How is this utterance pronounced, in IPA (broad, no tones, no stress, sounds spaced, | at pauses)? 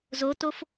z o t o f